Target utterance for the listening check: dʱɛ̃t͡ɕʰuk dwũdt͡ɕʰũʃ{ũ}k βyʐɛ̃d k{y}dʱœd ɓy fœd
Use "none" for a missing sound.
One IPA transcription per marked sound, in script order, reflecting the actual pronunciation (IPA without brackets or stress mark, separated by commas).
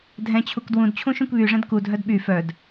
ũ, u